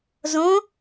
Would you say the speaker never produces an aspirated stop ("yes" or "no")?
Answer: yes